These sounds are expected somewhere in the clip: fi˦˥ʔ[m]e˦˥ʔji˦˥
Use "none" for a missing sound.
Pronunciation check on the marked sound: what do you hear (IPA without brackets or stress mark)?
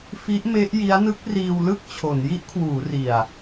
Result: m